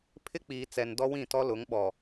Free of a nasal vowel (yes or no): no